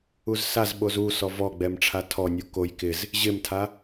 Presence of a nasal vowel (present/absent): absent